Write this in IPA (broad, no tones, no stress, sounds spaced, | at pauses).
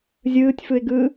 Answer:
zʲ ɯː tʲ f ɯ ɪ̯ ɡ ɯː